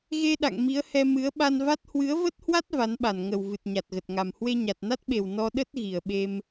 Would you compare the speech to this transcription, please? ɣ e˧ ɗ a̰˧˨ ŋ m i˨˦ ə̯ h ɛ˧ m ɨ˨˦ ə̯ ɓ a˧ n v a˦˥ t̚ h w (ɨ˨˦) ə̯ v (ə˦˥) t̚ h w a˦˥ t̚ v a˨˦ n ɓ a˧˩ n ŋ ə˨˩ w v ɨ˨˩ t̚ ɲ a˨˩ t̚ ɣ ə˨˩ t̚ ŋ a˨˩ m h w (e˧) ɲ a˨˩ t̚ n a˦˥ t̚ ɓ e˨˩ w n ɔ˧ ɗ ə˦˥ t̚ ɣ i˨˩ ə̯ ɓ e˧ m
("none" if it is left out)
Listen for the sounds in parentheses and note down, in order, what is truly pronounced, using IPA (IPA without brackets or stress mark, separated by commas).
ɨ˨˦, ə˦˥, e˧